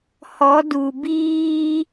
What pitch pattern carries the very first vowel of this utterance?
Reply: rising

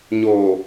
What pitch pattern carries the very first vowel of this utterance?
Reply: low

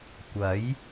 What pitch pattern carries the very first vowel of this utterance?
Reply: rising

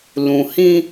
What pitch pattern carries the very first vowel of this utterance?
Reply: low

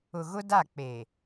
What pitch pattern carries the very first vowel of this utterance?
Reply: low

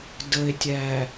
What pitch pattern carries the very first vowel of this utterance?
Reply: low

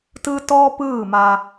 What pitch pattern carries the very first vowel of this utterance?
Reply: high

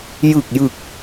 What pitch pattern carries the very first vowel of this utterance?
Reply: low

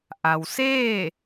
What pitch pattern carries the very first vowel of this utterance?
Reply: low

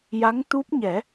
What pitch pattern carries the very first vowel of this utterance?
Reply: rising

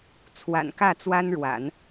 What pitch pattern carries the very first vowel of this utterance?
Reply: low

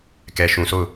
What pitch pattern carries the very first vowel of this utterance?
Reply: low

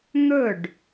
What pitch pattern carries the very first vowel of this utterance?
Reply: falling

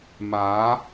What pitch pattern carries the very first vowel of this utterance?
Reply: rising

